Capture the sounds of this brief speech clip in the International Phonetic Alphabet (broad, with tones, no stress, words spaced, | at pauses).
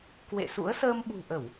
kwḛ˧˨sṵ˧˥ə̯ səː˧mɓṳ˨˩ʔə˧˩˨w